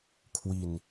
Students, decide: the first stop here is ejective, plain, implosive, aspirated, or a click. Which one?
aspirated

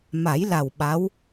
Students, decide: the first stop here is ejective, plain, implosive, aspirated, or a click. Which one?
implosive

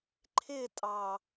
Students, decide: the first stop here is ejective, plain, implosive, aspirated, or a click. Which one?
click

